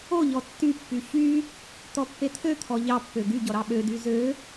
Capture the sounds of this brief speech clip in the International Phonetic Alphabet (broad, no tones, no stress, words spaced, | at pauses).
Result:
oʎɔ tːypːy çy | t̪ɔpːet̪ʰøt̪ʰɔ ʎɑpːø ɡy ɟɔɾɑɓødy zø